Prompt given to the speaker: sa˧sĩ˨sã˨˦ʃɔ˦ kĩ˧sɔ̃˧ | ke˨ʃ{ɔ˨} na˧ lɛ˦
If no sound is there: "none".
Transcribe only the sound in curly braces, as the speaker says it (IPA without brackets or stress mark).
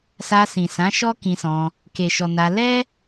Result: ɔ˨